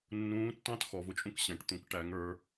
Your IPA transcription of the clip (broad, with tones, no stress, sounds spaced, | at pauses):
nː ũː˧˥ tː ɑ̃˥ t x ɔ˩˧ v ʊ˩ t͡ʃʼ ũ˧ k ɕ ɛ̃˩˧ ʈ t̪ ũ˩˧ k ʈ æ˩˧ ŋ ə˞˩˧